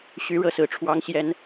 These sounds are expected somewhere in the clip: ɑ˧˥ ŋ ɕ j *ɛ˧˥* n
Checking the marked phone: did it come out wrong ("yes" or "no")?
no